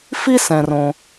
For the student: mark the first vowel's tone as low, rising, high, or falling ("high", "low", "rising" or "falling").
high